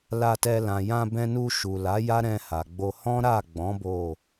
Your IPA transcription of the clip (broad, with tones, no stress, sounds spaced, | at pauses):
l a˧ t ɛ˧ l ã˨ j ã˧ b ɛ̃˧ n u˧ ʃ u˨ l a˨˦ j a˦ ɾ ɛ̃˧ h a˨ ɡ͡b o˧ h ɔ̃˦ ɾ a˦˨ ɡ͡b ɔ̃˨˦ b o˦˨